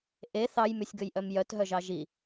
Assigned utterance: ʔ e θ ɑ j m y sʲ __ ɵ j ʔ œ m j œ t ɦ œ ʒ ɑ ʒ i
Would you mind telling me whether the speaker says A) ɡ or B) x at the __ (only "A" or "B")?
A